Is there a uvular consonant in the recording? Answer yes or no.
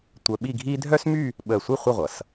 yes